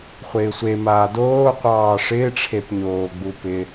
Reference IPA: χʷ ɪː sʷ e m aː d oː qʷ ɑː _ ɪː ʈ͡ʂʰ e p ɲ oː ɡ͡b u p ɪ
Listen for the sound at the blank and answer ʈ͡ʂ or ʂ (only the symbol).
ʂ